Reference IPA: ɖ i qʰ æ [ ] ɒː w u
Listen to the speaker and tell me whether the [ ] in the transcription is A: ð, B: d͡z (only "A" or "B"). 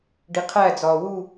B